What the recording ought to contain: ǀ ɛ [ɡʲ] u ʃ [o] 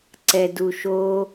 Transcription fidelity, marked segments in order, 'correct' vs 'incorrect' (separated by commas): incorrect, correct